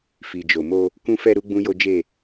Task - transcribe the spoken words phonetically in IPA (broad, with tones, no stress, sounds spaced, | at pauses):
f i˨ d͡ʒ o˨ m o˧ | k ũ˧ f ɛ˧ ɾ u˦ ɡ͡b ũ˦ j o˦ d͡ʒ e˦˨